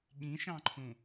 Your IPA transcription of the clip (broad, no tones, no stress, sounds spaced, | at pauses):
ɠ ĩ ʃ ɑ̃ ǃʰ ũ